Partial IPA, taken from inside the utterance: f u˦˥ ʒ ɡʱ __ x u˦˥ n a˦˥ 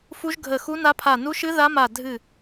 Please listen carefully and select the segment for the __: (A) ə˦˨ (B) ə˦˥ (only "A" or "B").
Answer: A